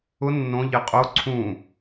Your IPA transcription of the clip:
ʊ nː õ ʎ ɪ qʼ o ǀʰ ũ

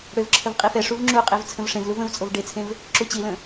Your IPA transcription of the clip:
ɽ ø v ǁʰ ə v qʼ i f ɛ ʂ u v ŋ͡ǁ u qʼ e v t͡sʰ ə̃ v ʂ ẽ v l u v ə̃ v t͡sʼ o v ɖ e t͡sʰ ẽ v | ǁ u t͡ɕ i l ə̃

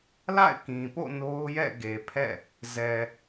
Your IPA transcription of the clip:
l a̰˦˨ ɪ̯ k ĩ˨ p o̰˦˨ n o˦ ʊ̯ j ɛ̰˦˨ ɡ e˨ pʰ ɛ̰˦˨ | z ɛ˨

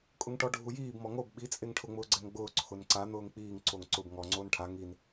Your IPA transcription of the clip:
kʼ ʊ ŋ ʈ ɔ ɖʱ u j iː b m ɔ ŋ o b ɓ i t͡sʼ e ŋ ʈʰ ʊ ŋ͡m ʊː ɡ͡ǀ ɛ ŋ ɡ͡b ʊː ǀʰ ʊ n ǀ a n̪ ʊː ŋ k͡p iː ŋ ǀ o ŋ ǀ ʊ b ŋ ɔ ŋ͡ǀ oː n ʈʰ a ŋ i n

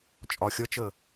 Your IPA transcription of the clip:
t͡ʃʼ ɒ xʲ ʌ t͡ʃ ə

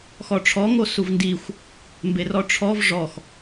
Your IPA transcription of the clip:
x ɔ ʈ͡ʂʰ ɔ ŋ o s u v n d i xʷ | m b e r ɔ ʈ͡ʂʰ ɔ v ʐ ɔ x

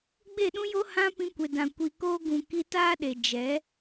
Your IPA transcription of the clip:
ɡ͡b e˦˨ ɗ ũ˦ j o˧ h ã˧ p ĩ˧ kʷ e˨ d ã˨ kʷ i˨ k oː˧ ɡ ũ˨ k i˧ t aː˦ ɗ e˨ d͡ʒ ɛ˨˦

